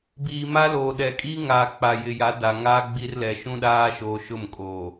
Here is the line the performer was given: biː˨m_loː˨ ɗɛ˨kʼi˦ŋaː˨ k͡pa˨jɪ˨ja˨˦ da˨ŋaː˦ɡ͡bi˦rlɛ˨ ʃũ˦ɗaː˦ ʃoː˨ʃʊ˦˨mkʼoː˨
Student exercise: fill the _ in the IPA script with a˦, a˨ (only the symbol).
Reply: a˦